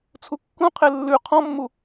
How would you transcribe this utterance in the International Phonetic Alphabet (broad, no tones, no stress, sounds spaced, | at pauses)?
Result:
t͡sʰ u kː ũ qʰ e lː ʉ qʰ ɔ̃ mː u